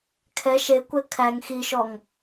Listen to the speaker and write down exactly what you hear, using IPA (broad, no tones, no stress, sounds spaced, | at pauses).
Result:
kʰ ɛ ʃ e kʷ ɛ kʰ æ ŋ x i ʃ ɔ ŋ